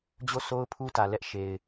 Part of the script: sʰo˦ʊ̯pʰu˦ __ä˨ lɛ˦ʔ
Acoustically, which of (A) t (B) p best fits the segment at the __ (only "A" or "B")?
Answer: A